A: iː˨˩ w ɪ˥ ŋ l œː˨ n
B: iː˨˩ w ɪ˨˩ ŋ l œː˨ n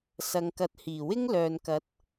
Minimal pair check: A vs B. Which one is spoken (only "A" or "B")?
A